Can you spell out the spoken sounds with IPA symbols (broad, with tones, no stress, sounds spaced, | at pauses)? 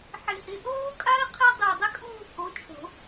ħ ɪ˨˩˦ h ɪ˩˧˩ ʔ oː˦˥ kʼ a˦˥ ɪ̯ qʰ e˦˥ dˤ u˧˩ ə̯ dˤ ɪ˦˥ kʼ uː˥˨ pʰ o˨˦ t͡ʃʰ o̤˨˩˦